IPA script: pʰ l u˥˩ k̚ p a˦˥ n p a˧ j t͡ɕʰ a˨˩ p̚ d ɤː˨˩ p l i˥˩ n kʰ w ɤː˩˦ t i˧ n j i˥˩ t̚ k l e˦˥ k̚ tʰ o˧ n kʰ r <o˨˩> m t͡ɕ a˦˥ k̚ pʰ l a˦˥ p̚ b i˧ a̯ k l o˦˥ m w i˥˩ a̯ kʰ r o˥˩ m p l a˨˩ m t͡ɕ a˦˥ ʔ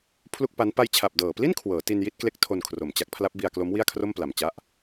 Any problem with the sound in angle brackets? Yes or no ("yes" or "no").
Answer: no